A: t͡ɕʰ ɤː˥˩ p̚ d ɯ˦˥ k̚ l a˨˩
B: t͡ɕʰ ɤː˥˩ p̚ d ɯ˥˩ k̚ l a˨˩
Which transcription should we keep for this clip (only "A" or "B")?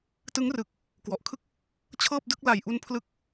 B